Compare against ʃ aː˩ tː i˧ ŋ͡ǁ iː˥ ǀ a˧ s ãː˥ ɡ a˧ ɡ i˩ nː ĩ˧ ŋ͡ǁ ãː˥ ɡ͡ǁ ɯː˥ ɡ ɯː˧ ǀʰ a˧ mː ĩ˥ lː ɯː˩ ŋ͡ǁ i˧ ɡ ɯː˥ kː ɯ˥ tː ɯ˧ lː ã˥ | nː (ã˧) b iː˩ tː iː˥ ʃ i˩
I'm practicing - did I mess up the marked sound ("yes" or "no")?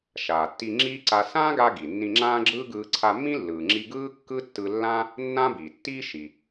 yes